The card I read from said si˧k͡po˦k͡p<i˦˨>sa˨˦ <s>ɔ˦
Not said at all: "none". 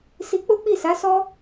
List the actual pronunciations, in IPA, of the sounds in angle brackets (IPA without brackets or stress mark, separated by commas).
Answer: i˦˨, s